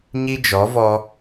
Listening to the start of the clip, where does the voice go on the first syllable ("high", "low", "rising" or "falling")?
high